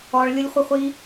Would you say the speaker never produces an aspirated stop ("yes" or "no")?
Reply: yes